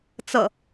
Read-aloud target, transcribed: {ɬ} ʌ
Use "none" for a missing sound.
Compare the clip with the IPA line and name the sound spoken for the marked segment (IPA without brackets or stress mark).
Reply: t͡s